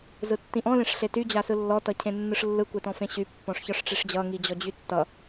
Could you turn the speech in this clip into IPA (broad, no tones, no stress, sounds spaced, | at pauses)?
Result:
z ɯ tː ĩ ʔ ɔ̃ l ẽ ʂ ɬ e t y d͡ʑ a s ɯ lː ɔ t ʌ cʰ ẽ nː ɯ ʂ lː ɯ kʷ e t ɔ̃ f ẽ ɕ y pː ɔ̃ ʂ ç ɒ ʂ ʈ͡ʂ e ʂ d͡ʑ ʌ ŋ i d͡ʑ ɔ d͡ʑ y tː ʌ